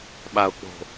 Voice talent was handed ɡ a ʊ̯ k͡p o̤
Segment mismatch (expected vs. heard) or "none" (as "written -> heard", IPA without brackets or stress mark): ɡ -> ɓ